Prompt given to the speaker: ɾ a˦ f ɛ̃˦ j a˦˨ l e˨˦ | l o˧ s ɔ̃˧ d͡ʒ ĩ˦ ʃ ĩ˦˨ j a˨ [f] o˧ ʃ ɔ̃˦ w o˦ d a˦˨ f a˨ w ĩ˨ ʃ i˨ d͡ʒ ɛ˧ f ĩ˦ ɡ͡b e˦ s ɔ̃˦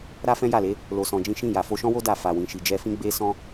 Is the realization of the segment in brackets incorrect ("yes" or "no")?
no